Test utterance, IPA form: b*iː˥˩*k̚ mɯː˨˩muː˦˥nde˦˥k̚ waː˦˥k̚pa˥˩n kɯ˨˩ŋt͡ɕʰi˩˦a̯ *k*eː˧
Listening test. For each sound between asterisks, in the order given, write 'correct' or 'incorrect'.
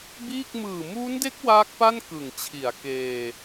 correct, correct

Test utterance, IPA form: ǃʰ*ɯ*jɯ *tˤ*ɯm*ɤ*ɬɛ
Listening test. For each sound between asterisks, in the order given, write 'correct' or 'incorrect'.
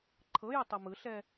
incorrect, correct, incorrect

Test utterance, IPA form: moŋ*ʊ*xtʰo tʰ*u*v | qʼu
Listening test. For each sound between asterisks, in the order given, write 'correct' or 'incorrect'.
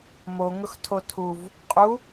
correct, correct

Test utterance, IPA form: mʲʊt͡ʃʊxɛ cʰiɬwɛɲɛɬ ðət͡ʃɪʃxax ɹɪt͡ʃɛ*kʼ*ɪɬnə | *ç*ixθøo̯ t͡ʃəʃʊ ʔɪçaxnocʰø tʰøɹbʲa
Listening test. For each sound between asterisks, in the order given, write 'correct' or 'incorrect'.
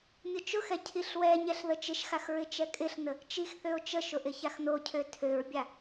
correct, incorrect

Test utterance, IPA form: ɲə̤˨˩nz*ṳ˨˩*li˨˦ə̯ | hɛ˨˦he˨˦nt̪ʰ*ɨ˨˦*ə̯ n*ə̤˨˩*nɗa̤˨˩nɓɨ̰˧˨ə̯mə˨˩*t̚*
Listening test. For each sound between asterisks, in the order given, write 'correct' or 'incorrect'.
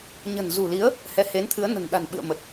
correct, correct, correct, correct

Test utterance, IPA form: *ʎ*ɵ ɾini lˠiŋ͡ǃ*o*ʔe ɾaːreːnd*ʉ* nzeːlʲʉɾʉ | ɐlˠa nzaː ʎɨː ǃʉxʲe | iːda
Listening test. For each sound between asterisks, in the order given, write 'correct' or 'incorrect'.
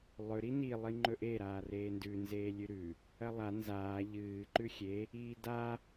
incorrect, incorrect, correct

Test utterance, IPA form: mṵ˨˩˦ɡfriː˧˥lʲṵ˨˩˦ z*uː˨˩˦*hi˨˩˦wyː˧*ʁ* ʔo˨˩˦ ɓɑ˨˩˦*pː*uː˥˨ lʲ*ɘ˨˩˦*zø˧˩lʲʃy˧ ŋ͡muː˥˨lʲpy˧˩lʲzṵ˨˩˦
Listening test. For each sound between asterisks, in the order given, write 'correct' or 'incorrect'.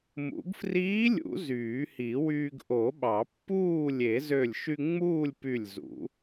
incorrect, incorrect, correct, incorrect

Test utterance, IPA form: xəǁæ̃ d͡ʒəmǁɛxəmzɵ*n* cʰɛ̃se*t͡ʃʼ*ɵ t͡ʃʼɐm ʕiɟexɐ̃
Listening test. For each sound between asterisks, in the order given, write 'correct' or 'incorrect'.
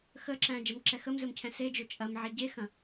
incorrect, incorrect

